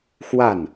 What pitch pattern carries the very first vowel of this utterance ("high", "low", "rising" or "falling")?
falling